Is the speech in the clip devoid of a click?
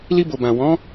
yes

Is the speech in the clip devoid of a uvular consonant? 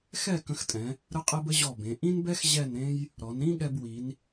no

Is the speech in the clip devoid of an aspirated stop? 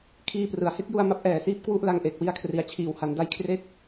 no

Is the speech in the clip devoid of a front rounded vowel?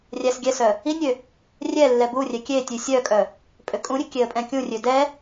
no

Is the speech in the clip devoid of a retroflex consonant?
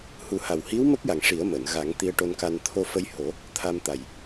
no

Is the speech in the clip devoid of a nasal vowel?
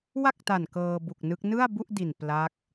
yes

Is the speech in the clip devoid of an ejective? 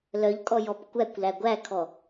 no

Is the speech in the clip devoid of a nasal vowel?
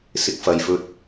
yes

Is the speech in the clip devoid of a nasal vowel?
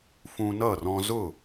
no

